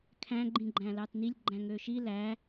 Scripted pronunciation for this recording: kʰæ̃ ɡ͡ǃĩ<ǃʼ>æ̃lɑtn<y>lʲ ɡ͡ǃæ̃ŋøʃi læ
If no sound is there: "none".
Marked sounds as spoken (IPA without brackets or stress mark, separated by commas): ɡ͡ǃ, i